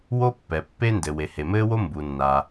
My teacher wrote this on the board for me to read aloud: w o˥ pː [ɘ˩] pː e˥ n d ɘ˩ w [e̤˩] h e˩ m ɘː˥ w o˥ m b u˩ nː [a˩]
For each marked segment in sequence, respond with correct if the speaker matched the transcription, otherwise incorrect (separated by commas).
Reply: incorrect, incorrect, correct